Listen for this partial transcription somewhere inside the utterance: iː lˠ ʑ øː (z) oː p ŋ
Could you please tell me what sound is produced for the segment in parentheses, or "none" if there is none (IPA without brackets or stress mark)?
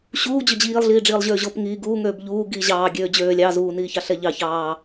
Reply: ʑ